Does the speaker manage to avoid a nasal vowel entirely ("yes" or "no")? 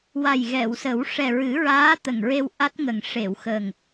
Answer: yes